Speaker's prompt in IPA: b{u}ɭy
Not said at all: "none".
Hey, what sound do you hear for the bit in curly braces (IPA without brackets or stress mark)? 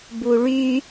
u